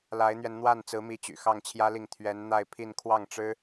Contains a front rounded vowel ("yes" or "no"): yes